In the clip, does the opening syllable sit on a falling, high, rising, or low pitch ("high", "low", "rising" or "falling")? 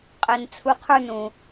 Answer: low